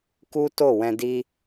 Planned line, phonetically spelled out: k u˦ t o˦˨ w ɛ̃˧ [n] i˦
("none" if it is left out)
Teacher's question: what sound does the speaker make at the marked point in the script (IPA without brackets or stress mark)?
d